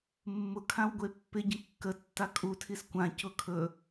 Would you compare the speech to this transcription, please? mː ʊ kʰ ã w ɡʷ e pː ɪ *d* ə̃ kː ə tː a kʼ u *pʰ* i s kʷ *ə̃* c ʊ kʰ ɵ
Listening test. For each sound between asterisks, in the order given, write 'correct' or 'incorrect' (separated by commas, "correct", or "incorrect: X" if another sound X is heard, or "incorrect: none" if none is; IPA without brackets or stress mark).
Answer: incorrect: ɟ, incorrect: tʰ, incorrect: ã